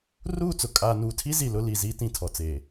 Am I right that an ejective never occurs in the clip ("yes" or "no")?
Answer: no